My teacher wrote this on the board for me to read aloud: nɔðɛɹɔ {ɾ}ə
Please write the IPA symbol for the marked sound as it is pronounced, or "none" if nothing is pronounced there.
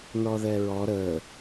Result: ɾ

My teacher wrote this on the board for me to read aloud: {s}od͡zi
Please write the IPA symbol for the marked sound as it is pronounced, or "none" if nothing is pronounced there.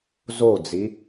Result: z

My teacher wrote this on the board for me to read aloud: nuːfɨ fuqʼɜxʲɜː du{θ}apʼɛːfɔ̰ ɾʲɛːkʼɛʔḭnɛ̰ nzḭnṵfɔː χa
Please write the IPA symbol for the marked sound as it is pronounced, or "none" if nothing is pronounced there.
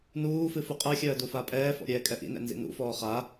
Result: f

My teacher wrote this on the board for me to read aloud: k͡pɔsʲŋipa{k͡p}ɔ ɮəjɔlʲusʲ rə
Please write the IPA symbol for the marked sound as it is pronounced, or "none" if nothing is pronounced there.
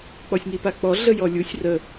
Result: k͡p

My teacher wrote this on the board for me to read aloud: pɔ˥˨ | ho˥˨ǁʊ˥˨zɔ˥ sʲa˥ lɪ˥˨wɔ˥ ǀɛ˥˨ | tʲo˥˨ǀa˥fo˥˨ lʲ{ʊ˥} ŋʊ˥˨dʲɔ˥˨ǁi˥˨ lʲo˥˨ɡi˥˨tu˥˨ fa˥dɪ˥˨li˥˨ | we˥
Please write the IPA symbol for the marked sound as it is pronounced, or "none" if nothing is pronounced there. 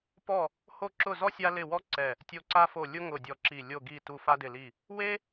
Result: ʊ˥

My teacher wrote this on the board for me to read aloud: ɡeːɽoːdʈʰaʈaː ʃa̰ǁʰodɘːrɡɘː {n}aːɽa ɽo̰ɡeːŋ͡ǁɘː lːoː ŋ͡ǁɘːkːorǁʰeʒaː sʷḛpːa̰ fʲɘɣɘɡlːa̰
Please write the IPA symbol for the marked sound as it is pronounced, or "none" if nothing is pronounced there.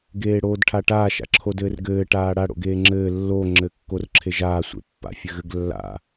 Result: ʈ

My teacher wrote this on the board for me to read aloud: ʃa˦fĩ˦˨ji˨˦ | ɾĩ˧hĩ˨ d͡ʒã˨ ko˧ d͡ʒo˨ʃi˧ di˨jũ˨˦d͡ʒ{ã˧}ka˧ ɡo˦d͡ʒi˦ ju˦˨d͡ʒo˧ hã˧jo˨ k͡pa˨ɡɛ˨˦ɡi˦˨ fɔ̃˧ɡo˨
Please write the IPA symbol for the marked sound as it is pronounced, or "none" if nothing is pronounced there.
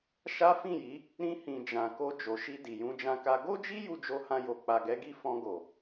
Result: ã˧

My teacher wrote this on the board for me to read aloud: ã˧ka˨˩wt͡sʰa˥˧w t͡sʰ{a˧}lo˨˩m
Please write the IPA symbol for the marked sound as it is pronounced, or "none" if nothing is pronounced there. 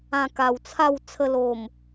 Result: ə˧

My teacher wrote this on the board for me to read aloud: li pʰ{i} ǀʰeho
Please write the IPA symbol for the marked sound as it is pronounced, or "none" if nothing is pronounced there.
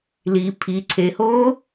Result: i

